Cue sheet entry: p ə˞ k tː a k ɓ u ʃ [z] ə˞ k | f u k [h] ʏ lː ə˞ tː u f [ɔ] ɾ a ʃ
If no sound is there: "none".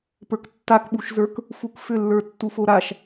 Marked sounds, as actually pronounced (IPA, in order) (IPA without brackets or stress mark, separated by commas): z, f, o